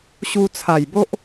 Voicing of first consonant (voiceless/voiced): voiceless